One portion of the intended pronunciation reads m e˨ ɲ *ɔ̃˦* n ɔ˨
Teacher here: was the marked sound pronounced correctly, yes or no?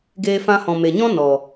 yes